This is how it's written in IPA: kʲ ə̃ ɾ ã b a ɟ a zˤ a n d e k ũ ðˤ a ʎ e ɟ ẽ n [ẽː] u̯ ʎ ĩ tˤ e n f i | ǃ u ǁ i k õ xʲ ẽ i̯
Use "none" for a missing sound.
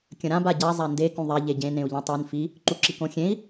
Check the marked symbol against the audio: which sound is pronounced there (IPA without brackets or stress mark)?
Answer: ẽ